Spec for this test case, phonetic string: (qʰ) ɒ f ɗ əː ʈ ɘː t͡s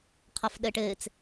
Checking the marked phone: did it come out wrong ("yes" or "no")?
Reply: no